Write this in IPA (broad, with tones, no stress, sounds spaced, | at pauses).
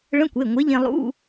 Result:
ɭ ə̃˧˥˧ kʷ e˩˧˩ ŋʷ e˨˥ ʎ ẽ˧ lˠ ṵ˧˥˧